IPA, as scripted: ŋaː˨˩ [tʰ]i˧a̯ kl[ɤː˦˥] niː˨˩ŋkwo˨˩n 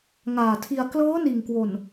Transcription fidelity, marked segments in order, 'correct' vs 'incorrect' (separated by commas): correct, correct